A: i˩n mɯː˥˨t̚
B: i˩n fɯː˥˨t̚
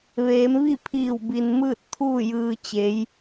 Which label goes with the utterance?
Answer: A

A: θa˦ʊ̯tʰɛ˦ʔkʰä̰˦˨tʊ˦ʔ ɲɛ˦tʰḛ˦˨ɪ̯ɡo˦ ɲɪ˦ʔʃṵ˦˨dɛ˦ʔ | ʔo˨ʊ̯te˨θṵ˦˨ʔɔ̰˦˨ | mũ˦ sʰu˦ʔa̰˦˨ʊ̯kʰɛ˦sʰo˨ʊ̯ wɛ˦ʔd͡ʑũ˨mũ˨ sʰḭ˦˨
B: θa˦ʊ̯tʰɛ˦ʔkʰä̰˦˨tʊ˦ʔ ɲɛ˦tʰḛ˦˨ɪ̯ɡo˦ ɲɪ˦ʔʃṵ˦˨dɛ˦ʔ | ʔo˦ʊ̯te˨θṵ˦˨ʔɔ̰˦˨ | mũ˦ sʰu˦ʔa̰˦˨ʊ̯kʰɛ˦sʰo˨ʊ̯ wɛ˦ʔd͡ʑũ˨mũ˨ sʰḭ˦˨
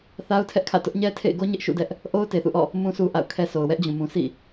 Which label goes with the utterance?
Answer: B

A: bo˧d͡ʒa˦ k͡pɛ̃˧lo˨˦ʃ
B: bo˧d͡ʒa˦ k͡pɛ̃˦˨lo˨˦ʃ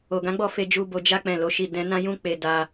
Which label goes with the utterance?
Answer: B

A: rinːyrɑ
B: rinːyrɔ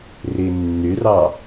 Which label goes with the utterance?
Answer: A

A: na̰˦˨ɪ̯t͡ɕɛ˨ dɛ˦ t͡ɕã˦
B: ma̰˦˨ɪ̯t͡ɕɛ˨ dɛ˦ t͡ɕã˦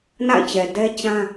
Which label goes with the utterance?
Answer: A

